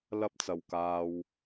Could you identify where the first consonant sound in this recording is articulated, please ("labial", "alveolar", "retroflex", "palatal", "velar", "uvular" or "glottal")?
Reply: alveolar